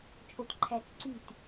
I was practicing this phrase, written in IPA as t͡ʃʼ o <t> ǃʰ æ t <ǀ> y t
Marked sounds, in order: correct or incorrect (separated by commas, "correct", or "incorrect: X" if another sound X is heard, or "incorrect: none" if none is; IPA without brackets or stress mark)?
correct, correct